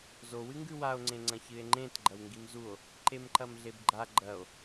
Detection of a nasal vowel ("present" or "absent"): present